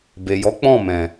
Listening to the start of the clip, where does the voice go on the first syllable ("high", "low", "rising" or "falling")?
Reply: low